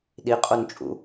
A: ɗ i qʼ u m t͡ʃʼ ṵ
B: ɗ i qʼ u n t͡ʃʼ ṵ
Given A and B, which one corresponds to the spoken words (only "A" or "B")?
B